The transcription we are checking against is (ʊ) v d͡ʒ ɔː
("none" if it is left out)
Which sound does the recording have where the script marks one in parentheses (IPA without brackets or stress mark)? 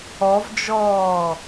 ɔ